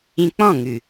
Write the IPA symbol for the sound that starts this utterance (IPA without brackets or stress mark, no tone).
ĩ